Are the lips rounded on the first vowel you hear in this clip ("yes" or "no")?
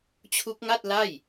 yes